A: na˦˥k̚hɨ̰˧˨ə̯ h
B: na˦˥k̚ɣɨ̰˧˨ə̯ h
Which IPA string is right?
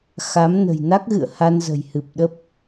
B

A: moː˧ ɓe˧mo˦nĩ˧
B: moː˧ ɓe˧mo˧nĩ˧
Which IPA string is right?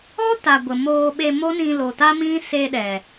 A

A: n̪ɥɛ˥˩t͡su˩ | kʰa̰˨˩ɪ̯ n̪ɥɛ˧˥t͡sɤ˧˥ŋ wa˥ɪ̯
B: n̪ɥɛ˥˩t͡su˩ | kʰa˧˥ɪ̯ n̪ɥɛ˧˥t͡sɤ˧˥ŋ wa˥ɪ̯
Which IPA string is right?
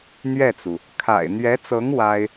A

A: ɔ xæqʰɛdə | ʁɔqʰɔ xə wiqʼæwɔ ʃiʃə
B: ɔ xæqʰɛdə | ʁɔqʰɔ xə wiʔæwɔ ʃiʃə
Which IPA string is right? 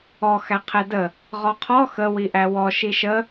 B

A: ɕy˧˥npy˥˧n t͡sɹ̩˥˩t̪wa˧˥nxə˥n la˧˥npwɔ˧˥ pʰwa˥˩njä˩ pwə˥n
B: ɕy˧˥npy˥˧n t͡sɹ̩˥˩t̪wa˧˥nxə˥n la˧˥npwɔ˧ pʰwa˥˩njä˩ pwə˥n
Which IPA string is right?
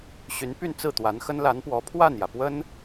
A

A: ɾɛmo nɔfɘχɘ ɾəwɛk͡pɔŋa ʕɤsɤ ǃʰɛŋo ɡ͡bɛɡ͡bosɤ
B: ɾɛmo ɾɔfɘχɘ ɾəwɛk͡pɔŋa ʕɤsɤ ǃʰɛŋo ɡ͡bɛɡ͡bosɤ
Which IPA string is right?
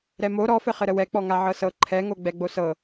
B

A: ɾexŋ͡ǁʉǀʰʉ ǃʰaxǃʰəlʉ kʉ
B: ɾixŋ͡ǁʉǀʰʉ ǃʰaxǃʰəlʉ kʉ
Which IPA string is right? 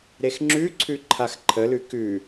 A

